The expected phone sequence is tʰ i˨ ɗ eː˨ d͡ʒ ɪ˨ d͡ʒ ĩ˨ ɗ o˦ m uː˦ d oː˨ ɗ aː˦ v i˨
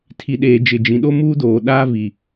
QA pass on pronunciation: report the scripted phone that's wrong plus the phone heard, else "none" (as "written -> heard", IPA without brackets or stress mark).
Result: none